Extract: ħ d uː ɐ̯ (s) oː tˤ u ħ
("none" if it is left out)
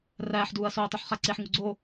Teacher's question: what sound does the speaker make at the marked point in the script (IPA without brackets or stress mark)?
s